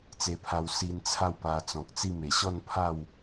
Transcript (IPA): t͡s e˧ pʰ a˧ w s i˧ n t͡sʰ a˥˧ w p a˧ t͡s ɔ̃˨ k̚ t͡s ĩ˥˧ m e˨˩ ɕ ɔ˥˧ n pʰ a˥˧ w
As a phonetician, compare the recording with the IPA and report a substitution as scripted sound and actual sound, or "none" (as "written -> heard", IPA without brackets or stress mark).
ĩ˥˧ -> i˥˧